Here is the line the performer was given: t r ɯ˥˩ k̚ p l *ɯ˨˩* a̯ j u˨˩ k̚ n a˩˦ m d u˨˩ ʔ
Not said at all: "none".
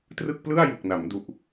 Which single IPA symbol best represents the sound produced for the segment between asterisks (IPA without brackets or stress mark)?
ɯ˥˩